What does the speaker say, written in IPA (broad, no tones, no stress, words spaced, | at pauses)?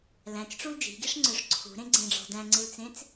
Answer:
læ̃t͡ʃʈ͡ʂul d͡ʒi̤ɡiʂŋ͡ǀøʂ ǀʰṳɾẽɡ͡ǀẽɖ͡ʐɔ̤ dæ̃ŋ͡ǀɨlt͡sẽt͡s